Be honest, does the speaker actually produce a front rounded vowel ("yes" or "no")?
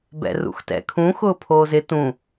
no